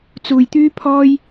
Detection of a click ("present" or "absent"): absent